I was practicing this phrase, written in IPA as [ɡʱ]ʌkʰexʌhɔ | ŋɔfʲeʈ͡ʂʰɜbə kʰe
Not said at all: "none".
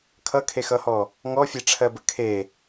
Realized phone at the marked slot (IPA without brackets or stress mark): kʰ